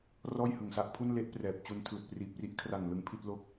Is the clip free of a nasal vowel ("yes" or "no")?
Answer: yes